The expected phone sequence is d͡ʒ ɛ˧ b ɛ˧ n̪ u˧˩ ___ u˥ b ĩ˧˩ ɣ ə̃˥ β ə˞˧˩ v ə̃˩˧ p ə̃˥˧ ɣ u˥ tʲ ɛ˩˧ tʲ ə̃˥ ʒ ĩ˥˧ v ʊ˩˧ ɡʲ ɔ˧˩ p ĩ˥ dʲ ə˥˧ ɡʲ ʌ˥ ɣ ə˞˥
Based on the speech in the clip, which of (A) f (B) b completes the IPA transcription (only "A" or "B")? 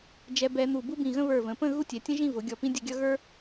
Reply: B